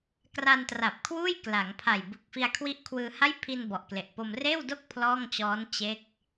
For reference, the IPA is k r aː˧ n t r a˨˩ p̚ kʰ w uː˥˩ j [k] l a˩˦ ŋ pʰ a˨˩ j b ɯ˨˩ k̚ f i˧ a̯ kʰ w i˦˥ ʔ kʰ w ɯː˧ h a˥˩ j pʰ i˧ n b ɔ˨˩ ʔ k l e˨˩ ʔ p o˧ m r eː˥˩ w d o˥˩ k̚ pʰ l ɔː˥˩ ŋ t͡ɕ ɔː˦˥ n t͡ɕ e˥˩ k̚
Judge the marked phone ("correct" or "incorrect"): correct